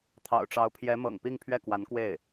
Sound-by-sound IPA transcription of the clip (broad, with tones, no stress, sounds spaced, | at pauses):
t̪ʰ ɑ̰˨˩ ʊ̯ ʈ͡ʂ ɑ˧˥ ʊ̯ pʰ j ɛ˧˥ m ɤ̰˨˩ ŋ p i˥˧ ŋ pʰ ɥ ɛ˥˩ k w a˧˥ n k w e˥˩ ɪ̯